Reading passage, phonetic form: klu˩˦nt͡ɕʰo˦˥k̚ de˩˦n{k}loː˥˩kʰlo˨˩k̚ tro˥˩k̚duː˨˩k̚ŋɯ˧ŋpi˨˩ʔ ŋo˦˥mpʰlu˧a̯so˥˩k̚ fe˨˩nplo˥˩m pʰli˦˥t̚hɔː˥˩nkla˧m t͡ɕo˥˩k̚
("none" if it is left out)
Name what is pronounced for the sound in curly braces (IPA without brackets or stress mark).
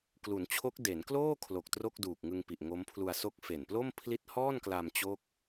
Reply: k